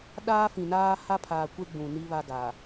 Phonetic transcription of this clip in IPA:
ɗ aː˦ f ĩ˨ n aː˦ h a˦ pʰ aː˨ kʷ e˦ ɡ͡b ũ˨ n i˦ β a˦ ɡ a˨

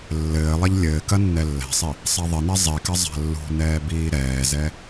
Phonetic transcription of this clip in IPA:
lː ɘː lˠ ɐ ʎ lʲ ɘː k ɐ nː ɛ lː ɛ̤ sˤ i | sˤ ɛ ðˤ ɘ n ɛ zˤ i k ɐ zˤ a̤ lː ṳ n ɛː b iː ɾ ɛː z ɛ

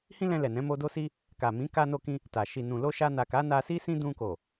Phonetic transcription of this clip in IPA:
h ĩ˦ l ɛ̃˧ l ɛ˨ n ɛ̃˨˦ m o˧ d o˦ s i˦ | k a˨ m ĩ˨˦ k a˧ n o˧ k ĩ˧ | t a˨ ʃ i˨ n ũ˨ l o˧ ʃ a˧ n a˨ k a˨˦ n a˧ s i˦ s ĩ˦ d ũ˧ k o˨

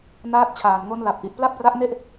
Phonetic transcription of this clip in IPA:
n aː˦˥ t̚ t͡ɕʰ aː˨˩ n ŋ o˦˥ n l a˨˩ p̚ ʔ i˨˩ ʔ p l a˥˩ p̚ r a˦˥ ʔ n e˥˩ ʔ

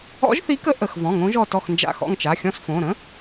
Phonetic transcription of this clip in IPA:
ɔ̰˧˥ ʒ θ i˧˥ k ə˧˥ ʔ ə˩˧˩ x v ɔ̃˩˧˩ ŋ õ˧˥ ʒ ɔ˦˨ t ɔ˦˨ x n d͡ʒ a̰˦˨ x ɔ̰˦˨ ŋ t͡ʃ a˩˧˩ xʲ ɔ̃˦˨ s f õ˩˧˩ ɾ ə̃˧˥

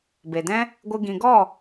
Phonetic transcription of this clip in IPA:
b e˨ d ɛ̃˦ | ɡʷ ɨ˧ ɡ ĩ˨ ɡ ɔ˦˨

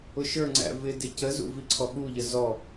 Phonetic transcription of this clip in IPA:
ʊ ʃ ə˞ ŋ͡ǀ æ̰ v ɪ d ɪ c ə z ṵ v i ǀʰ ɔ ɠ u ʎ ə z ɔ

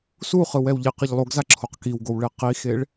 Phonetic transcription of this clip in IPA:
s u χ ɯ w ɛ w ʎ i q ʌ ʎ lˠ o ɡ z a ǁʰ o q k i w ɡ o w ɭ e q i x e ɭ

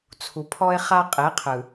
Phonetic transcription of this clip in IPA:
t͡sʰ u˨ pʰ ɔ˦ ɪ̯ χ a˦ qʼ e˨˦ qʰ ɯ˨

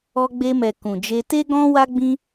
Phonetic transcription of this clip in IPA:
ɔ˧ ɡ͡b e˧ m ɛ˨ k ũ˨ d͡ʒ e˧ t e˦ ɡ ɔ̃˦ w a˦ ɡ͡b ĩ˦

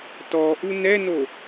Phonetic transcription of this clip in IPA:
t ɔ ʔ u n ɛ n o

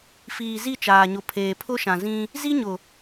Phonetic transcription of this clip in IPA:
f iː˨ z i˦˨ t͡ʃ aː˨ ɲ ʊ˨ pʰ eː˨ pʰ ʊ˦ ʃ ã˨ z ĩ˦ | z i˦ ɲ ʊ˨

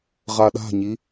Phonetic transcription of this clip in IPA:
ʁ a ɗ a̤ ɲ i

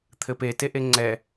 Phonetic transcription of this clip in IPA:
t̪ʰ ɘ p e t e ʔ e ŋ͡ǀ ɛ

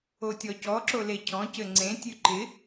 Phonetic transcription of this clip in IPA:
o tʲ ɔ c ɔ ǁ o l e cʰ ɔ̃ c ɘ ŋ͡ǀ ẽ tʲ ʉ ǃ ɪ

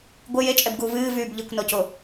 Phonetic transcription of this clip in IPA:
ɡʷ ɪ j e t͡ʃʼ ɛ b ɡ uː v ɨː v yː b ʎ i kʷ n ɔ c o

